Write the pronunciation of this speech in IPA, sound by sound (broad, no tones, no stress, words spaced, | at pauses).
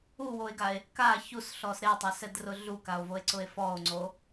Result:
uwoe̯ɡae̯ | ka çusɬɔs ɾetˤasɛdrʊ ɮukao̯voe̯ǀʊe̯ fɔo̯ŋ͡ǀo